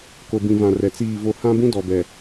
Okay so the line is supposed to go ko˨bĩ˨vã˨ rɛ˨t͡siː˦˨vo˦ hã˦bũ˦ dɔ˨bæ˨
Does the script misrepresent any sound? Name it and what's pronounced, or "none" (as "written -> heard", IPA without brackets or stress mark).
æ˨ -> ɛ˨